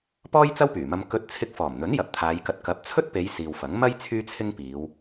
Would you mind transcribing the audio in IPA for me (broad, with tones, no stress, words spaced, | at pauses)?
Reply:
pɔː˥jt͡sɐ˥wpyː˨˩mɐ˧m kɵ˧t̚ t͡sʰɪ˧k̚fɔː˨˩mn̪ɵ˨˥n jɐ˨p̚t̪ʰaː˨˧jkɐ˧t̚ kɐ˨˥p̚t͡sʰɵ˥t̚pe˨˧j siː˨wfɐ˨˥ŋ mɐ˥j t͡sʰyː˥t͡sʰɪ˥ŋpiː˨˧w